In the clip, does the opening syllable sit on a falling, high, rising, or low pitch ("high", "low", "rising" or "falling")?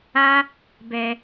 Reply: high